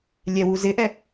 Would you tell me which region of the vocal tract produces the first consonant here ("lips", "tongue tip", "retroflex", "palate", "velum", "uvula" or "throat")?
tongue tip